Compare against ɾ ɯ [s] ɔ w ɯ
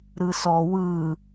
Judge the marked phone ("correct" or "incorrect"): correct